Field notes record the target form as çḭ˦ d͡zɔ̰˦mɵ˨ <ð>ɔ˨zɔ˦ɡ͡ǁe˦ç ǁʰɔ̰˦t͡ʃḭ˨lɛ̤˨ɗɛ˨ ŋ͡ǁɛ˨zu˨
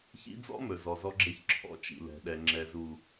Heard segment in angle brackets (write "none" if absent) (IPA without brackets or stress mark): z